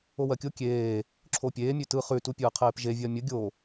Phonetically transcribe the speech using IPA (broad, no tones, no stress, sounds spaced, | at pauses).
o w ɜ kʲ o kʲ eː | ǁʰ o pʲ eː mʲ ʉ t ɯ χ ʉ t u pʲ ɯː qʰ eː p ʒ e vʲ ɜ mʲ ə ɡʲ o